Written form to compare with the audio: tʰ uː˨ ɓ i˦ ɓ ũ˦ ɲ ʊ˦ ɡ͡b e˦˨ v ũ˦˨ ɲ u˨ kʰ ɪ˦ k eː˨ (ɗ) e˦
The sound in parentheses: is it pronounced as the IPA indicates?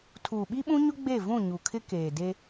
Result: no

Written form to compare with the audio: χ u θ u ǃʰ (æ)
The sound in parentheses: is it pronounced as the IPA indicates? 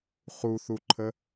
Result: no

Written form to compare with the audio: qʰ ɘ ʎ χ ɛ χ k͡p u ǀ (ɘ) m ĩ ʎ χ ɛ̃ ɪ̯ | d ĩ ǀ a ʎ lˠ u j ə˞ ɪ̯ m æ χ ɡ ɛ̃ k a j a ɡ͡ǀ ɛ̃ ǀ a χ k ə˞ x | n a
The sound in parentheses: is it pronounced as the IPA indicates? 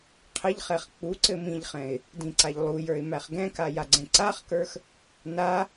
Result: yes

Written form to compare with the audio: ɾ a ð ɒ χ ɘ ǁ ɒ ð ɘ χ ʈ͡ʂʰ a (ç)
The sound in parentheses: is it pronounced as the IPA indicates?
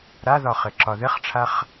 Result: no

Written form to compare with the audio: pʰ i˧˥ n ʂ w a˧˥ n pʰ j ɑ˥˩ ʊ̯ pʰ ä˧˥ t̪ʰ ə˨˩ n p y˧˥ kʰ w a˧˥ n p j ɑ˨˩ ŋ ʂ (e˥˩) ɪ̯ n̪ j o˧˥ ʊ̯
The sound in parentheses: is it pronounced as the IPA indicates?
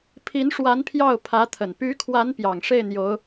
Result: yes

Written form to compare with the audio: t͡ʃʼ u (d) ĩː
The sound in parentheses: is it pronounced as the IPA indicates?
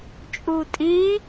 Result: no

